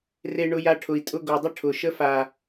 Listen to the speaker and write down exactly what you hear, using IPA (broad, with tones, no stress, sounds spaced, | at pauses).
r e˧ ɳ ʊ˧ j a˧ ʈʰ ʊ˨ i̯ tʼ ʊ˧ ɡ o˨ dˤ ə˦ ʈʰ ʊ˨ ʃ ə˦ f a˨